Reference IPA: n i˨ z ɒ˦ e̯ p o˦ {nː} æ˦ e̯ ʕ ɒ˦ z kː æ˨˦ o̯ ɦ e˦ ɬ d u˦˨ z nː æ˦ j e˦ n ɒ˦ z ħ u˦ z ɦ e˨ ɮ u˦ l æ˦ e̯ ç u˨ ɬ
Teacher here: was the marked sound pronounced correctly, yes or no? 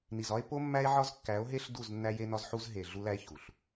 no